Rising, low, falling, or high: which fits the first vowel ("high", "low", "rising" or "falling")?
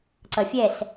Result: low